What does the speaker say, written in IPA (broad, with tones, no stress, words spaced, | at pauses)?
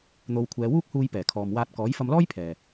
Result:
n̪o˨˧wkʷʰɛː˨˧wuː˥k̚huː˧j pɛː˨˩kʰɔː˨mwaː˧t̚ kɔː˨˥jfɐ˧mlɔː˥jpʰɛː˨